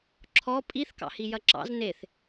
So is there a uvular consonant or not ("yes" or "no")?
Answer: no